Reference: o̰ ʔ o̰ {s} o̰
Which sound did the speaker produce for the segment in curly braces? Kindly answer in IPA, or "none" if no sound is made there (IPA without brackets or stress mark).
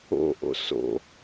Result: s